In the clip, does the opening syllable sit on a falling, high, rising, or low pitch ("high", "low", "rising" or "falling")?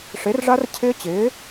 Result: rising